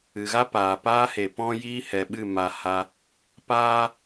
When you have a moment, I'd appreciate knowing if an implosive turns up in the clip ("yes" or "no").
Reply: yes